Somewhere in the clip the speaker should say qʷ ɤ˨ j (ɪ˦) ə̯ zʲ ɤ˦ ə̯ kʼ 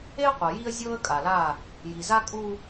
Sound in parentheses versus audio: incorrect: i˦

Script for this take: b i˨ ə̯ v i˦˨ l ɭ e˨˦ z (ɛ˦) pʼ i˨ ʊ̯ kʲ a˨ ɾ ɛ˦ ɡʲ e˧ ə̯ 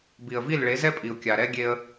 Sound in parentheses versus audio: correct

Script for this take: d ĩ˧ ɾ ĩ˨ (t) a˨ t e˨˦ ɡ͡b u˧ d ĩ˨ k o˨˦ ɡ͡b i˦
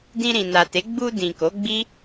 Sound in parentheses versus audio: incorrect: n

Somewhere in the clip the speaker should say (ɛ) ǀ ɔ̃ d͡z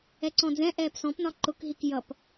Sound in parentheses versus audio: correct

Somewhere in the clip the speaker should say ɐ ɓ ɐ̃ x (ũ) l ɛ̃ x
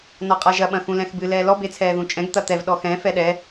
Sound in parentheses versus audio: correct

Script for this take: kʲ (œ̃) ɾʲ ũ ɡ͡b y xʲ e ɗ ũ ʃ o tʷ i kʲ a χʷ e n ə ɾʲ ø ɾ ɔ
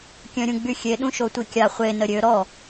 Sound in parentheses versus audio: correct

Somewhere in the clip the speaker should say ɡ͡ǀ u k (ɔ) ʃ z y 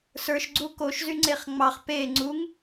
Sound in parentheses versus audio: incorrect: o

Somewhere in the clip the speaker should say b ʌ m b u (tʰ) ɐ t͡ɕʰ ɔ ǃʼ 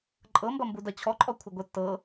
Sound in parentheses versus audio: incorrect: d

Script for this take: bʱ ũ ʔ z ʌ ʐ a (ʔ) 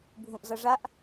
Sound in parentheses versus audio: correct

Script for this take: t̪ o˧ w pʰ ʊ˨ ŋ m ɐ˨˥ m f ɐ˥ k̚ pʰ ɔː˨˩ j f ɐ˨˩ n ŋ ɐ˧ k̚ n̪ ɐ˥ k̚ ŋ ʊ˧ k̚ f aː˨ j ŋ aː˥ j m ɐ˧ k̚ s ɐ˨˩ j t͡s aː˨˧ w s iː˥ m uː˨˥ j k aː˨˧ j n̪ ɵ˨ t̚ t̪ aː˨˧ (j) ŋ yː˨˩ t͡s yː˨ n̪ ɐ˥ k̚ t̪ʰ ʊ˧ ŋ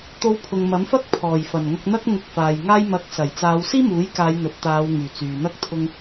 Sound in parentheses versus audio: incorrect: w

